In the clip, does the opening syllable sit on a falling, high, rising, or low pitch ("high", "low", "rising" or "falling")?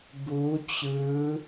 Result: rising